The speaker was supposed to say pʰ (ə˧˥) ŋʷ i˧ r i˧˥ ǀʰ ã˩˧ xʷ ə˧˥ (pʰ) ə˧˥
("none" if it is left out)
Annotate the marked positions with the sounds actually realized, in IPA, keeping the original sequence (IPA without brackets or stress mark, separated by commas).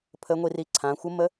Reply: ə˧˥, m